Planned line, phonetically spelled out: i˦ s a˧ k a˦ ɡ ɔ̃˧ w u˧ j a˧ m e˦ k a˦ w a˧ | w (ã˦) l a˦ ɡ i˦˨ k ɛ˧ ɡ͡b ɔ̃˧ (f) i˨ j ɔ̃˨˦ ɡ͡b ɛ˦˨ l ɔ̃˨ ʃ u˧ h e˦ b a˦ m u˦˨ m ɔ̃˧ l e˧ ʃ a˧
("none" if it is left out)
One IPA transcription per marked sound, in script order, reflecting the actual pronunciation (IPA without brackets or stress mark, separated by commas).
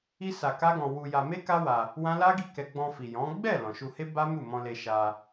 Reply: ã˦, f